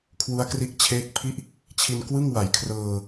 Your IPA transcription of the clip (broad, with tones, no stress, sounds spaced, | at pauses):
kʰ w u˦˥ a̯ k r i˦˥ ʔ t͡ɕʰ eː˦˥ k̚ pʰ i˥˩ ʔ | t͡ɕʰ i˧ n k w ɯ˥˩ ŋ w a˩˦ j kʰ r ɤː˧